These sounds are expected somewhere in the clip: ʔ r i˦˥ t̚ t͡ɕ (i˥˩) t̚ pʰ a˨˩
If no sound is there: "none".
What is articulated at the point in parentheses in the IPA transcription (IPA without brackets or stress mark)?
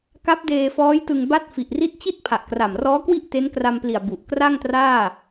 i˥˩